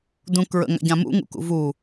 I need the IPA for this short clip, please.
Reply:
d ũ k ɹ ə̰ ŋ a̰ ɟ ã m ṵ ŋ ṵ k ṵ v u

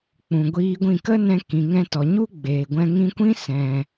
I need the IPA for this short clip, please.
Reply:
k͡p ũ˨ ɡʷ iː˧ ɡʷ ĩ˦˨ k ə˦ n ɛ̃˧ k ĩ˨ ŋ ɛ̃˧ t ɔ˨ ɲ u˦ ɡ͡b eː˨ ɡʷ ɛ̃˧ ŋ ĩ˧ kʷ ĩ˦ s ɛ̃˧

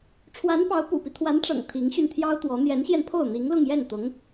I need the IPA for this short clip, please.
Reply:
ʈ͡ʂʰ w a˧˥ n p ɑ˧˥ ʊ̯ p ṵ˨˩ p i˦ t̪ʰ w a˧˥ n ʈ͡ʂ ɤ̰˨˩ ŋ t̪ʰ i˧˥ ŋ ɕ y˧ n t̪ʰ j ɑ˥ ʊ̯ t̪ w ɔ˧˥ n̪ j ɛ˧˥ n ɕ j ɛ˧ n pʰ o˥˩ ʊ̯ n̪ i˧˥ ŋ l ʊ˥˧ ŋ j ɛ˥˩ n t̪ ʊ˧˥ ŋ

